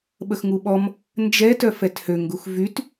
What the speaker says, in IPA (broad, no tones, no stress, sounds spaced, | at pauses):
ɓ ə x ŋ u ɓ ɔ m | n d͡ʒ ɛ t œ f ɛ t h ø ŋ ɡ u x v y t